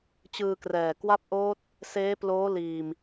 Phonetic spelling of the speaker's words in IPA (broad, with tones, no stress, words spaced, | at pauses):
t͡ɕɯː˧krɛː˨˩ kwa˦˥p̚ʔoː˦˥t̚ | seː˦˥ploː˦˥ liː˧m